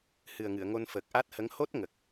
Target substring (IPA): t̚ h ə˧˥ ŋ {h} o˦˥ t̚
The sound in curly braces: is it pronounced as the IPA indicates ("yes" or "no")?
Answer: yes